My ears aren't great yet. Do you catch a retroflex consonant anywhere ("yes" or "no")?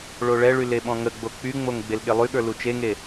yes